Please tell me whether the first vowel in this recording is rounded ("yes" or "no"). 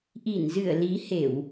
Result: no